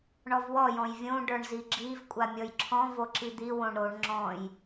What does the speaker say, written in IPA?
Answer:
ɳɔvwɔ jɔ̃jvʲõ ɖə˞ɳziɡ͡ǁiv kʷʼamʲɔjǁʰɔ̃ voǁid̪i wõɳɾoɳ ŋ͡ǁɔ̃j

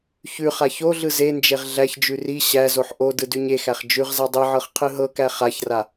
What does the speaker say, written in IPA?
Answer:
çʉ χaçoɮɯ zend͡ʒeʁ ɮæçd͡ʒʉ ri ɕæzoħ ʔo dɯdʉɲexæχ d͡ʒʉʁza dˤiʕɤχ qʰɯɦɤkæ χaçra

